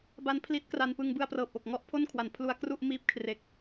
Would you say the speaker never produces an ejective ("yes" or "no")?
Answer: yes